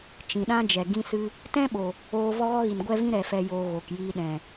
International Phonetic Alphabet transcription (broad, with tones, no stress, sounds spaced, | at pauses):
t͡ʃ ĩ˨ ɗ ã˦ d͡ʒ ɛ˨ ɡ ĩ˦ s ɨ˦ | t ɛ̃˦ ɓ o˨ | oː˧ v ɔ˦ ɣ ɔ˦ ɣ i˨ n ɡʷ ɛ˦ v ĩ˦ ɾ ɛ˨ f ɛ˨ j o˨ ɣ o˨ k j i˧ ɗ ɛ̃˨